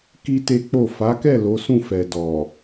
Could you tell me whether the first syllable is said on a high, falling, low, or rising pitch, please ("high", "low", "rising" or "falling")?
high